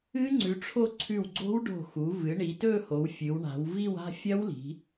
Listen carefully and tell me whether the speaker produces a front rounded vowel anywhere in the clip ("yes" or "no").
no